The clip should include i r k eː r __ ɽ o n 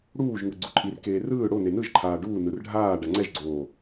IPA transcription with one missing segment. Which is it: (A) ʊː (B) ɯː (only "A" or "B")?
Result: B